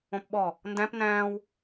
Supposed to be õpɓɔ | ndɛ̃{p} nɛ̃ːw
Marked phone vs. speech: correct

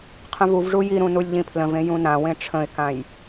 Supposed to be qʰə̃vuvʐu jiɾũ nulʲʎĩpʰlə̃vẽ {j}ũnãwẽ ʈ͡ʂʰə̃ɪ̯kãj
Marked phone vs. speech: correct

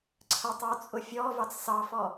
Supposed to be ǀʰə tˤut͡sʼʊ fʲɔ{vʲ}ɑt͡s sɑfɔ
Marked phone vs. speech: incorrect: v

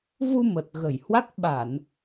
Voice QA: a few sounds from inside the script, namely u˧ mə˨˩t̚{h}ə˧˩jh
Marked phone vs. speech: incorrect: ɣ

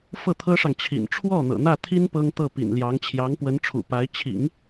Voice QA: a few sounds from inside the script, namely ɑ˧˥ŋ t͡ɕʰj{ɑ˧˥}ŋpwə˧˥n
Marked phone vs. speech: correct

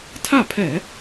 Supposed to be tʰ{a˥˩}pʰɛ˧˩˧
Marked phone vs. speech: correct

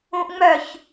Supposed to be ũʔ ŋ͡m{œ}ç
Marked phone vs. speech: correct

